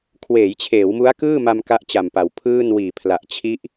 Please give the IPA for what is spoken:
kʰ w eː˩˦ j t͡ɕʰ eː˩˦ w m u˦˥ a̯ k ɯː˥˩ m a˧ m k a˥˩ ʔ t͡ɕ a˨˩ m p a˩˦ w pʰ ɯː˥˩ n w iː˨˩ pʰ l a˨˩ ʔ t͡ɕʰ i˦˥ ʔ

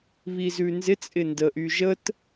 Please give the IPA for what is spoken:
β i z ʉ n z ɪ t͡sʼ ɪ n d ə ʔ y ʒ ə t

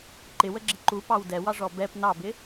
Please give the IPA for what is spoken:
ǃ ɪ w ə ɡ͡ǁ ɪ ǃ u p ɑ w d ɛ w ɑ ʐ ɔ b ɛ p n ɑ b ɪ

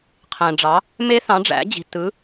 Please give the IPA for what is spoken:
qʰ æ̃˨ ɖ͡ʐ ɑ˨˦ | m e˦˥ θ ɑ̃˨˦ ɖ͡ʐ æ̰˨˦ d͡ʑ i̤˨ t ɯ˨˦

